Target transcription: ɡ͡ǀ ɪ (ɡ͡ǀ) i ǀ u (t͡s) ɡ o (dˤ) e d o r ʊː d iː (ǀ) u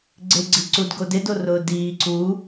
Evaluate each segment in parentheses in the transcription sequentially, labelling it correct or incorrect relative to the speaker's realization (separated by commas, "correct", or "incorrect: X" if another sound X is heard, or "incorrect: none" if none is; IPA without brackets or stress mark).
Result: correct, incorrect: d, incorrect: d, correct